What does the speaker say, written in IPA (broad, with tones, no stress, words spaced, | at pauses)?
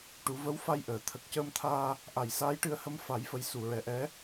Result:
ʈu˨˩˦və˧˥wfa˧jʔəː˨˩˨ t̪ʰə˨˩k̚cəː˧mt̪ʰaː˧ | ʔa˨˩˨jsaː˧˥jʈɨ˧ə̯hə˧m fa˨˩˦jfə˨˩˦jsu˨˩˨ɹɛ˨˩ ʔɛ˧˥